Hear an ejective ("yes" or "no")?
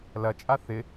yes